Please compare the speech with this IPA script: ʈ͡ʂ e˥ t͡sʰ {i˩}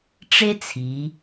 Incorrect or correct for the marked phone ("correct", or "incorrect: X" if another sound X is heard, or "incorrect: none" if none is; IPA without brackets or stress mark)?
incorrect: i˩˧